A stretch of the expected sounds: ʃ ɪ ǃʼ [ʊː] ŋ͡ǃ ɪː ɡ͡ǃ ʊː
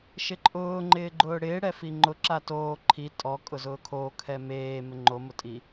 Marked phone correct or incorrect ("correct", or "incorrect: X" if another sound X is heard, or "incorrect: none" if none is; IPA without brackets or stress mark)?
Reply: correct